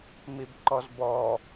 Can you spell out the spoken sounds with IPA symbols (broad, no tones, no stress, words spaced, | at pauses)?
mibǃɔzbɔ